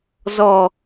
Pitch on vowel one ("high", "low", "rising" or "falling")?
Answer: falling